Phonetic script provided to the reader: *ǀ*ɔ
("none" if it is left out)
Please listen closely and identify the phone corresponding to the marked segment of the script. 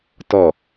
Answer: t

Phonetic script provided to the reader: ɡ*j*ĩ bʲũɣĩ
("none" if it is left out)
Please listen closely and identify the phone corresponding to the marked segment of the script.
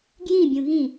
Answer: j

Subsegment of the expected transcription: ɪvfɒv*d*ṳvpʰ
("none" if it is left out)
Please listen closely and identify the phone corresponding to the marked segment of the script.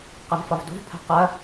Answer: d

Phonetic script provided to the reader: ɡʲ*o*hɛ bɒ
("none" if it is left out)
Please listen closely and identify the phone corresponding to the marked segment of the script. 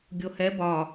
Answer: o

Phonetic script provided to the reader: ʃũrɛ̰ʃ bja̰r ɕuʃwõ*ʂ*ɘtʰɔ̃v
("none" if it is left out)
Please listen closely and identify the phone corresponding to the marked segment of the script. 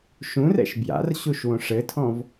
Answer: ʂ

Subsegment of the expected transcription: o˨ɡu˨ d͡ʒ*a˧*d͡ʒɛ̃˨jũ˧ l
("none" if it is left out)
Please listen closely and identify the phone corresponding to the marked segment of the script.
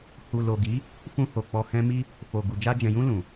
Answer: a˧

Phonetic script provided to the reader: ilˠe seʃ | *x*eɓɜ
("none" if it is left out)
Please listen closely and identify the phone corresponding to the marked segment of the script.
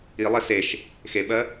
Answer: x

